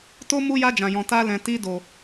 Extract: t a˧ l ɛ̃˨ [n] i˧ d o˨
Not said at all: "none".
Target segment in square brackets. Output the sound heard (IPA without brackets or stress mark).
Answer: t